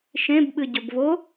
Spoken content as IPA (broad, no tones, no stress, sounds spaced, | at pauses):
ʃ ẽ b ɓ ɨ ɟ ɵ b v o